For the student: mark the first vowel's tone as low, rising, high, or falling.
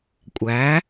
rising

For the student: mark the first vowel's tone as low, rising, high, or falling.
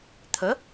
rising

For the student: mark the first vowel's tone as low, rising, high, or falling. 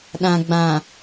low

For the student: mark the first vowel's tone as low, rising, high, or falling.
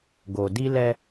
low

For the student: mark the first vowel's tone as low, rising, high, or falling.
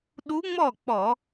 rising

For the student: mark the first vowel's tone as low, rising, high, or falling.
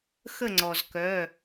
falling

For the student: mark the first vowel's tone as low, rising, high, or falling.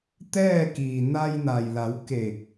falling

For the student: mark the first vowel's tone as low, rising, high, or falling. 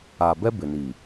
low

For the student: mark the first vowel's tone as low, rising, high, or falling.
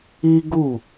high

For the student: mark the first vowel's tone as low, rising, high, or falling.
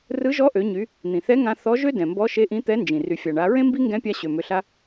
rising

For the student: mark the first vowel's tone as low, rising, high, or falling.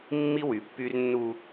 high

